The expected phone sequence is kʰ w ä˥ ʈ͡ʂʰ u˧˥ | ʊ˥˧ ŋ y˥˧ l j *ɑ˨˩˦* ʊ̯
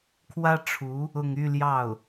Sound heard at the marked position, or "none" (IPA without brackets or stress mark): ɑ˥˩